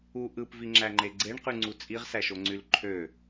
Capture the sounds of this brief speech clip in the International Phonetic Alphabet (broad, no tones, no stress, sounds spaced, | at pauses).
u ʔ ɯ p v i ŋ͡ǁ æ ŋ͡ǃ e ɡ͡ǀ e ɳ q y ŋ͡ǀ u t͡sʼ i ʁ s æ ʃ o ŋ͡ǀ y l ǃʰ ø